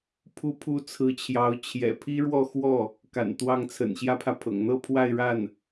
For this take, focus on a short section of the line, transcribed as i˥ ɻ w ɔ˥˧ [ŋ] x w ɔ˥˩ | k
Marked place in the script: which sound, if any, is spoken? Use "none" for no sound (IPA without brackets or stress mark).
none